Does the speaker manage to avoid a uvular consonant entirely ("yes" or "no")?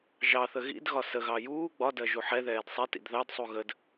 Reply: yes